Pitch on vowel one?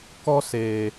high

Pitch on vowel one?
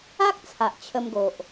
high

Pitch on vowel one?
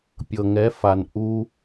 low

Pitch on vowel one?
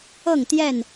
falling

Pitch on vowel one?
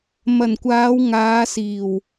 low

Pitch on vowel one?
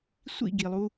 falling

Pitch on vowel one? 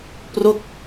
falling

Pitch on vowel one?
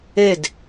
falling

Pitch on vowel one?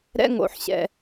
high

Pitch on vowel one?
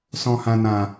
low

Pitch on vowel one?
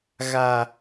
high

